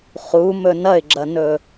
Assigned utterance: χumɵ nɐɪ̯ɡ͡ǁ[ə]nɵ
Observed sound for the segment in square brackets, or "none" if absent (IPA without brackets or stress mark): ɐ